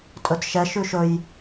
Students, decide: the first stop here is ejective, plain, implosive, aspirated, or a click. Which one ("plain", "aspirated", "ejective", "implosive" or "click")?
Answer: ejective